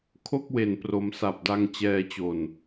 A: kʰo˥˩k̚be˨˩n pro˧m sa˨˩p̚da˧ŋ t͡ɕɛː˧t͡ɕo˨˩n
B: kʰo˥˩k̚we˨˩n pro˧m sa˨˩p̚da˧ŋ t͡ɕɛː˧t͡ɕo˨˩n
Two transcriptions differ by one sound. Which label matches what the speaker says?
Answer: B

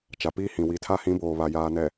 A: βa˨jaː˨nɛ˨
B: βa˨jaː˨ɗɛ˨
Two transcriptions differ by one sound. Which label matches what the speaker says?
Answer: A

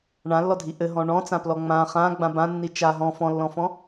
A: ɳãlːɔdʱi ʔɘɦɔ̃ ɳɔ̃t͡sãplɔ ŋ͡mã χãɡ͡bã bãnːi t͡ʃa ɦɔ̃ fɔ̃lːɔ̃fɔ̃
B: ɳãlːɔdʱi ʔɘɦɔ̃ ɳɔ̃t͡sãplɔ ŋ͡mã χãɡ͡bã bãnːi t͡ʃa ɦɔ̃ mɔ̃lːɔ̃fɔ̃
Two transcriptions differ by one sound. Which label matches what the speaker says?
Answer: A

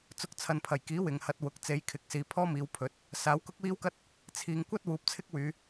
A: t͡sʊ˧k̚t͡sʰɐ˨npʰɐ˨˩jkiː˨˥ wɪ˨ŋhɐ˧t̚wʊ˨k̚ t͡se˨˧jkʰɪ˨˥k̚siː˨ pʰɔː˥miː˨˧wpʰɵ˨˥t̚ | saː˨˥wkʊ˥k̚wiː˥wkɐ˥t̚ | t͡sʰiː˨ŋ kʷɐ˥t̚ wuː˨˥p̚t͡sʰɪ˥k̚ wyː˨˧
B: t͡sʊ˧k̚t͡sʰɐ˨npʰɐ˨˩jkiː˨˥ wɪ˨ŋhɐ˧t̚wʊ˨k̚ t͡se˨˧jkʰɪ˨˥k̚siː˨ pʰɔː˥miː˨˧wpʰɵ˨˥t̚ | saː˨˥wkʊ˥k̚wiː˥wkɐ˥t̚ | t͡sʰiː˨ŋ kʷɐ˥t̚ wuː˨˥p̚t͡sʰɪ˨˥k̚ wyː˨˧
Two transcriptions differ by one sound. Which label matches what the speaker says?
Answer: A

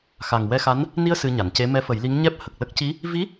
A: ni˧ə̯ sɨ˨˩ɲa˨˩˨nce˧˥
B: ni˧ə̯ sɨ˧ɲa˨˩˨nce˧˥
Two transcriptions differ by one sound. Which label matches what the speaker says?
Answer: B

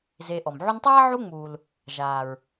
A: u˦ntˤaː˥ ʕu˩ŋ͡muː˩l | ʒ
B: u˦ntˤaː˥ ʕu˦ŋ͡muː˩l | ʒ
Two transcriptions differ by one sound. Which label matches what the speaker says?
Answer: B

